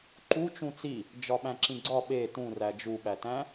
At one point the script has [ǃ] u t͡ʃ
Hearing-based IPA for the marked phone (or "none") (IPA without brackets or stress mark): ǃ